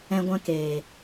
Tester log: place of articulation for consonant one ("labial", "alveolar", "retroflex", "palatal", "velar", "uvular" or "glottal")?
velar